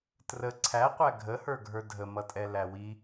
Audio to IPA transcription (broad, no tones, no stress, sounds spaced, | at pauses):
t r ə ǀʰ æ qʷ æ ɡʱ ə h ə˞ ɡʱ ə˞ dʱ ə m ʌ tʼ ɛ l æ w i